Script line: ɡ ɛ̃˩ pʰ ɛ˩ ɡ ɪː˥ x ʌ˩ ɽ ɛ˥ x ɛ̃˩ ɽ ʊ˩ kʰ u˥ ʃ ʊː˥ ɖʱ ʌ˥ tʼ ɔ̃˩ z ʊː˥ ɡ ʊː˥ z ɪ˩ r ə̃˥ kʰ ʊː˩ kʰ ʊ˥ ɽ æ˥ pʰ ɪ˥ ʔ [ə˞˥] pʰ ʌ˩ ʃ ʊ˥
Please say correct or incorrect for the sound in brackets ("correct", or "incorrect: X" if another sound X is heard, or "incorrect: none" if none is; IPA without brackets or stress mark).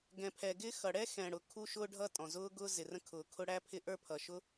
correct